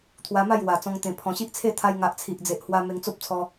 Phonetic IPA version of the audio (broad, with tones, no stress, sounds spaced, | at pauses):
t̪ʰ w a˧ m a˥˧ j w a˨˩ t͡s ɔ̃˧ ŋ t̪ ẽ˨˩ pʰ ɔ̃˨˩ ɕ i˦ ʔ t͡sʰ e˥˧ t̪ʰ a˧ j ŋ a˨ ʔ t͡sʰ i˨ ʔ d͡z e˨ ʔ h w a˧ m e˧ ŋ t͡s o˦ p̚ t͡sʰ ɔ˧